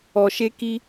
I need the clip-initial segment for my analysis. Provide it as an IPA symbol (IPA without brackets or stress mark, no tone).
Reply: ɔ